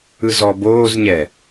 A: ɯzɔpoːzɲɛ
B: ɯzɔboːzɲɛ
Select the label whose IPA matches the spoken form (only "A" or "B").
B